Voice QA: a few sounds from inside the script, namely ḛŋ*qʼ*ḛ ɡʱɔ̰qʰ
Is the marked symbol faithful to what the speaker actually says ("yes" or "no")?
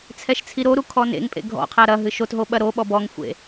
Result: no